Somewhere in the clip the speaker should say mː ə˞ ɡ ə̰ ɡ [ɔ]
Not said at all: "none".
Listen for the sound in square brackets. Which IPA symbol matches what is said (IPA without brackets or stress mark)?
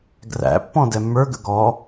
ɔ